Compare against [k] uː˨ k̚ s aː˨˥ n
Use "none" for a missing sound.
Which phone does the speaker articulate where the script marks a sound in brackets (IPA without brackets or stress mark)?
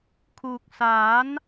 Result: kʰ